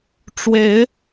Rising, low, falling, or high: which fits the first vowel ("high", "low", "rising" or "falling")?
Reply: rising